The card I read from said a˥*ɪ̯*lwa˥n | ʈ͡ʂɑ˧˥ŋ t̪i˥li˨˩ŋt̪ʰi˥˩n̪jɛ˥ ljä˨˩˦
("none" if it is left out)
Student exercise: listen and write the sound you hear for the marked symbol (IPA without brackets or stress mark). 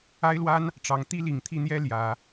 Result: ɪ̯